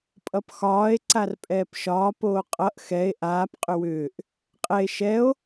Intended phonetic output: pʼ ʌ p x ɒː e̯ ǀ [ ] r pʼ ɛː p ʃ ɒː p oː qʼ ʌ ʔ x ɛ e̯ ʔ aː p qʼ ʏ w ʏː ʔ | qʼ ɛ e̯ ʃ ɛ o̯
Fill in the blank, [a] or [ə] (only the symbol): a